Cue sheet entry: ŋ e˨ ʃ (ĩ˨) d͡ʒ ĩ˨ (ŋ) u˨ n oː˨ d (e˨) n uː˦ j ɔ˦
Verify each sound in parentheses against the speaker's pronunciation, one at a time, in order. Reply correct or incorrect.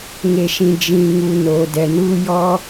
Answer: correct, correct, incorrect: ɛ˨

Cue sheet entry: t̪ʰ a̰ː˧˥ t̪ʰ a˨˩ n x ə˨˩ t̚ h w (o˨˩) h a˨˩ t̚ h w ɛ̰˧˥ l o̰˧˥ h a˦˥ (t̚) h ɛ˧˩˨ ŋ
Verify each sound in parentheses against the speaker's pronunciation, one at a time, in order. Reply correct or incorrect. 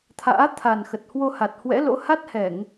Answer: incorrect: o˧, correct

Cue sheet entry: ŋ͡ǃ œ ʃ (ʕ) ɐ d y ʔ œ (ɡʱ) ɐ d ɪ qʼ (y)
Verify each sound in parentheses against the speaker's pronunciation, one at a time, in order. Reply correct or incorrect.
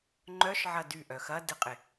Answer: correct, incorrect: x, incorrect: ɪ

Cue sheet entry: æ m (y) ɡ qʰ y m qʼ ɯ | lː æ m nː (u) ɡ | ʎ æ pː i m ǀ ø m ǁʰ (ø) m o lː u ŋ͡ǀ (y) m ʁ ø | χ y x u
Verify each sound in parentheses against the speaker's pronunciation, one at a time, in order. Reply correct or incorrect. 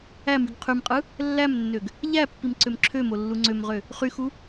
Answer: correct, incorrect: ø, correct, incorrect: ø

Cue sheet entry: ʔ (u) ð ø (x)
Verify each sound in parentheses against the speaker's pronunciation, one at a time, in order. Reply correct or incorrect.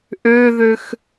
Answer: incorrect: ø, correct

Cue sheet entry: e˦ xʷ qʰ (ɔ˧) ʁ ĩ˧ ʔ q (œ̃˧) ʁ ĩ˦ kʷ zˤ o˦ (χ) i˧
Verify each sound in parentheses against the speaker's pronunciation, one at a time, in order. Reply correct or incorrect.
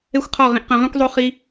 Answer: incorrect: ɔ˦˨, correct, correct

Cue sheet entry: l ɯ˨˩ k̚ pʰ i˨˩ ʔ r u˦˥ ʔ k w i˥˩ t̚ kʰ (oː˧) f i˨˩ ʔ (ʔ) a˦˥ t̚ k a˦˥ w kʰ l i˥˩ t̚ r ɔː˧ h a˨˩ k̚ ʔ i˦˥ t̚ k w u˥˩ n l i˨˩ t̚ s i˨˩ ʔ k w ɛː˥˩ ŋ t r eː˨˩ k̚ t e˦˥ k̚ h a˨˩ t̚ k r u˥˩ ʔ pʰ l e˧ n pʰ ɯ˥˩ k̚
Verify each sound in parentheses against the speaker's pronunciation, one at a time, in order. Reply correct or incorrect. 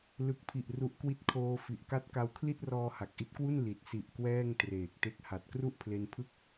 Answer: correct, incorrect: k

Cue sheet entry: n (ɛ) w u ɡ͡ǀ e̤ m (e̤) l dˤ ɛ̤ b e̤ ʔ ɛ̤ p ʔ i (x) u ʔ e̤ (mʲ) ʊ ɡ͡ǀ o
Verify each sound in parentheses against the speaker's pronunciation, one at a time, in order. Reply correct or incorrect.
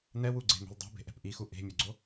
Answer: correct, correct, correct, correct

